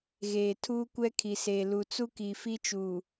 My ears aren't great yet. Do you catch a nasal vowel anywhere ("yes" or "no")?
no